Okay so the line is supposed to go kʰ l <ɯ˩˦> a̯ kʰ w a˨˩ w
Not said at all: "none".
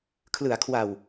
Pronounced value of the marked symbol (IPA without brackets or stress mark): ɯ˩˦